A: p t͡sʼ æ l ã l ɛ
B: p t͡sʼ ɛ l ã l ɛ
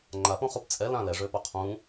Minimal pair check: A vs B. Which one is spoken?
B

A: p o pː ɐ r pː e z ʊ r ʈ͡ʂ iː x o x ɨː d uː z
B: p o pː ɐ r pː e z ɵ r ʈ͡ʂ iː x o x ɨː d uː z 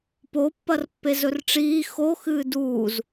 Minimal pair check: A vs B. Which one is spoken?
B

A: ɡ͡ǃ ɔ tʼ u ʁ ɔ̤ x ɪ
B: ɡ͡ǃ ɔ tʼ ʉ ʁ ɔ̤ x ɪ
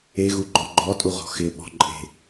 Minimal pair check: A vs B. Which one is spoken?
A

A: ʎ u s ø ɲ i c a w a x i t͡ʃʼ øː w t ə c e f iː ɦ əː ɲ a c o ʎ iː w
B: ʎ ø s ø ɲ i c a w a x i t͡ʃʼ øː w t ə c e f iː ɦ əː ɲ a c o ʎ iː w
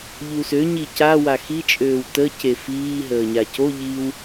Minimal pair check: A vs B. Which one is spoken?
A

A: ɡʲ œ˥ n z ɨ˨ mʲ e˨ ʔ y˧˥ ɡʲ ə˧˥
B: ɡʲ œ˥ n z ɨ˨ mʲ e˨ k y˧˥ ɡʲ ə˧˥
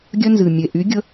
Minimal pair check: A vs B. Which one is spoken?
A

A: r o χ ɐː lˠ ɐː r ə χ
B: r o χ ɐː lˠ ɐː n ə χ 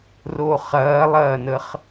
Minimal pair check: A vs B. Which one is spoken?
B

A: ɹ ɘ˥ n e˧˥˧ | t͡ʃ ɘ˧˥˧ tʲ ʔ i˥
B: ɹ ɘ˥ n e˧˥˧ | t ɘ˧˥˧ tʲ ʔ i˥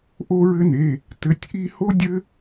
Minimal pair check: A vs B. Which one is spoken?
B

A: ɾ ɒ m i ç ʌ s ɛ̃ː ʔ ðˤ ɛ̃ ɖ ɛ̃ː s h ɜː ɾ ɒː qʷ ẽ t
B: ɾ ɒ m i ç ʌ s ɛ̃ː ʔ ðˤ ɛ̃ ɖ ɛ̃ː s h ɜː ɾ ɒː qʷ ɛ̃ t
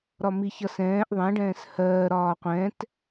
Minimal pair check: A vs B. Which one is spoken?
B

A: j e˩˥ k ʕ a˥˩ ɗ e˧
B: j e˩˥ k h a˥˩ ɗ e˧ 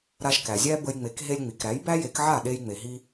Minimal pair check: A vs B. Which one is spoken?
A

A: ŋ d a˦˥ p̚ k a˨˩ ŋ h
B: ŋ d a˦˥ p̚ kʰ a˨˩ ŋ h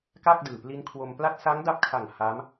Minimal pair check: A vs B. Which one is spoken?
B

